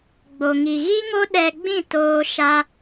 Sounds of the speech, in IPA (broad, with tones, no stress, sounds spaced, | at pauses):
ɡ͡b o˧ ŋ i˧ ɣ i˦ ŋ o˦ ɗ ɛ˧ ɡ͡b ĩ˦˨ t oː˧ ʃ a˦